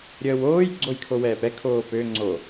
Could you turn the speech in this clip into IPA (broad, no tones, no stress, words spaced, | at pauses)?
ɾʲəːwoːj ɡ͡ǀojkʰowɛːpɛ kʰoːpø ŋ͡ǀo